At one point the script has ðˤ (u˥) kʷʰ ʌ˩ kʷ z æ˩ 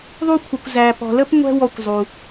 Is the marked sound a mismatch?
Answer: yes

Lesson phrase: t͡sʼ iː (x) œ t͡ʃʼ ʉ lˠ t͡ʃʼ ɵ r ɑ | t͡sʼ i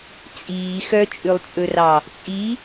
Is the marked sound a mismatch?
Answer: no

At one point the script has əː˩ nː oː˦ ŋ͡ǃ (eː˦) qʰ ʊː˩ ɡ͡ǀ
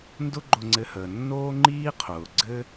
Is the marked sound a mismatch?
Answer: yes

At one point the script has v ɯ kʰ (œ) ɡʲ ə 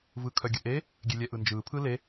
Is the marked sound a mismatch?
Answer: no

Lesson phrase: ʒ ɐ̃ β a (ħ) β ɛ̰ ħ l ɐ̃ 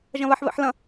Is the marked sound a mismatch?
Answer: no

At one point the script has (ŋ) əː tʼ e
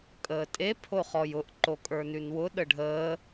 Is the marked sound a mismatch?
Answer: yes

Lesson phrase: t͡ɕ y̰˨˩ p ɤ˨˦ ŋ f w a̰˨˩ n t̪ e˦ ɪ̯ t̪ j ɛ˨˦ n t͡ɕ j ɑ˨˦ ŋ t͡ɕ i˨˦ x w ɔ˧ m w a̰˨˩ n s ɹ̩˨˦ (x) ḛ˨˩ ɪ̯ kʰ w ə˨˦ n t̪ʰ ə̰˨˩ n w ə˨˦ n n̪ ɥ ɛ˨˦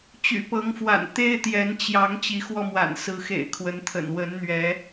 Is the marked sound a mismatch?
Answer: no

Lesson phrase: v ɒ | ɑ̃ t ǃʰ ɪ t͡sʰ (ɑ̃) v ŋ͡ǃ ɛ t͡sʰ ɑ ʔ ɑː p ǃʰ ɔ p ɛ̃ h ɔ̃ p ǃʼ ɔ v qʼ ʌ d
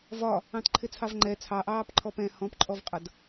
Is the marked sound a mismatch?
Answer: yes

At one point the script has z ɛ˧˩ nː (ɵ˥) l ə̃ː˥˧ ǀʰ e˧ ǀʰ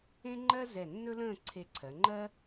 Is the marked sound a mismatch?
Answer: no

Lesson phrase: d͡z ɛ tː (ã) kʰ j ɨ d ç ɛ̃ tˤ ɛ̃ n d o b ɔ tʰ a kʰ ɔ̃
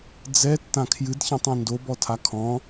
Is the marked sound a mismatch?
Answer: no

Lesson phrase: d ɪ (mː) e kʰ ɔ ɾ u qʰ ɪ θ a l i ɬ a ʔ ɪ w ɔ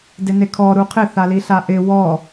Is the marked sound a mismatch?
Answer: yes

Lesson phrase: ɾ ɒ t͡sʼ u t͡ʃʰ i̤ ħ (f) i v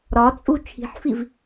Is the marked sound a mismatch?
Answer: no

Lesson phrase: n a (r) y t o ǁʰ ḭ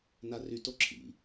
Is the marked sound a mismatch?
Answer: no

